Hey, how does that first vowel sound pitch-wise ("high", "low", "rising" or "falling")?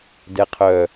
low